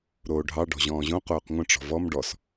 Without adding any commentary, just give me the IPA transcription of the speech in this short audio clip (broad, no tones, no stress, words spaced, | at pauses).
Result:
ɾoːɖʱɑ ɖɔ̤ʑɔ̃ːʑõ qoːqŋʷə̃ ʈ͡ʂɔ̤vɔm ɖɔs